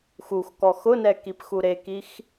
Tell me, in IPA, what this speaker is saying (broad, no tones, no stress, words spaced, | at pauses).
xuxkɔ xʊnɛkipxu ɾekix